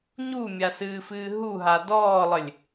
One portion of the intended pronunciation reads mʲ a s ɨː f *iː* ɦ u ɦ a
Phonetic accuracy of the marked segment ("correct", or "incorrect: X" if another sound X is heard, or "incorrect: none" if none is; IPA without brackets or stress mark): incorrect: ɨː